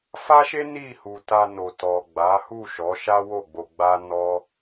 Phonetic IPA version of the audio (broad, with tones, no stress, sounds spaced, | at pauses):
f a˦ ʃ e˦ n i˦˨ h u˨ t a˧ n o˨ t ɔ˨ ɡ͡b a˨˦ h u˦˨ ʃ ɔ˨˦ ʃ a˦ w o˦˨ ɡ͡b o˧ ɡ͡b a˦ n ɔ˦